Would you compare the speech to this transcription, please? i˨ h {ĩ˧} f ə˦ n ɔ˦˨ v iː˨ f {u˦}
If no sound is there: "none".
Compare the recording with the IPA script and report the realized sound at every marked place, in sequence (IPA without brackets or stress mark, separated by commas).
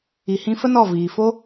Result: ĩ˧, o˦